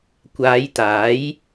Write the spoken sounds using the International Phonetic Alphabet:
kʷ aː˨˧ j t̪ aː˨˥ j

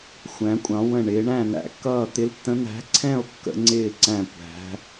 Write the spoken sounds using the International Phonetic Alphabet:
xʷ æ̃˧˥ kʷʼ ɑ̃˧˥ w ə̃˥˧ ɳ ɪː˧˥ ɳ æ̃˥˧ n̪ æ̰˧˥ kː ʌː˥˧ t̪ ɪ˧˥ l tː ə̃˧˥ n̪ æ̤˧˥ ǀʰ ɛ̃˥˧ o̯ kː ə̰˧˥ ŋ͡ǀ ɪː˥˧ ǀ æ̃˥˧ kʷ æ̤˧˥

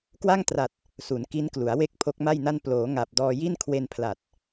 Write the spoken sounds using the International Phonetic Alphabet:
k w a˥˩ ŋ t r a˨˩ t̚ | s u˩˦ n k i˦˥ n k l u˩˦ a̯ w e˥˩ k̚ pʰ o˦˥ k̚ m a˥˩ j n a˥˩ n p l oː˩˦ ŋ a˨˩ p̚ d ɔː˧ j i˥˩ n kʰ w e˧ n pʰ l a˨˩ t̚

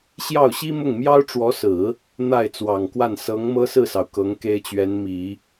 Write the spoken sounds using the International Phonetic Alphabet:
ɕ j ɑ˥˩ ʊ̯ ɕ i˥ m ʊ˥˩ ŋ m j ɑ˥ ʊ̯ ʈ͡ʂ w ɔ˧˥ s ɹ̩˨˩˦ | n̪ a˥˩ ɪ̯ t͡s w ɑ˨˩ ŋ k w a˥˩ n s ɤ˧˥ ŋ m ɤ˥ s ɹ̩˥˩ s ɑ˩ ʊ̯ k ɤ˧˥ ŋ k e˥ ɪ̯ t͡ɕ ɥ ɛ˧˥ n m i˨˩˦

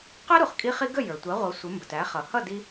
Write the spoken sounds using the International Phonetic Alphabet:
q ɛ˥ ɾ u˩ χ kʼ i˥ χ i˥ ɡ ə˥˩ j ə˞˩ tʷ ɛ˩˥ ʁʷ ʌ˩˥ sʷ ə˩˥ m b ə˩ t æ˩˥ χ ʌ˩ h ʌ˥˩ d i˧

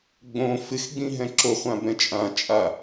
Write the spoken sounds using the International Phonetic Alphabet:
ɡ͡b õ f ɪ x ɡ͡b ĩ ɦ ɛ̃ ǁ o χʷ ã b ɛ̃ t͡ʃʼ ã t͡ʃʼ a

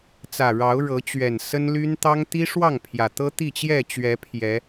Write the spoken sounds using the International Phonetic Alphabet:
t͡s ä˨˩ ɻ ɑ˨˦ ʊ̯ ɻ ɤ˨˦ t͡ɕ ɥ ɛ˨˩ n s ə˦ n l y˦ n t̪ ɑ˦ ŋ t̪ i˦ ʂ w ɑ˥˨ ŋ pʰ j ä˨˩ t̪ ɤ˦ t̪ i˥˨ t͡ɕ j ɛ˥˨ t͡ɕ ɥ ɛ˨˦ pʰ j ɛ˨˦

